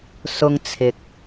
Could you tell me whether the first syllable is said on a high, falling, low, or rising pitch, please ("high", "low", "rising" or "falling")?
high